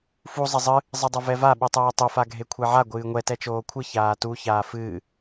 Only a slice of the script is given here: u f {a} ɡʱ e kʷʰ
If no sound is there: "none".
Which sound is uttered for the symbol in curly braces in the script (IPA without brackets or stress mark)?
a